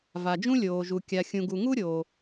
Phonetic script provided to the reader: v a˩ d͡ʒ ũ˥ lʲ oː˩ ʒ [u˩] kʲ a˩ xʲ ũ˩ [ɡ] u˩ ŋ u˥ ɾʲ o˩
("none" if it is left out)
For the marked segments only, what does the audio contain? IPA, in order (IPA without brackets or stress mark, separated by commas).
u˩, ɡ